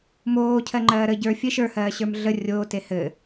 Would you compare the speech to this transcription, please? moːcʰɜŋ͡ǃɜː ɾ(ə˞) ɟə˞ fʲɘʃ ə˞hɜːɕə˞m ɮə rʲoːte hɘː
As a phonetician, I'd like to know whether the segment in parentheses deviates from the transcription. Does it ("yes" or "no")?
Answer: yes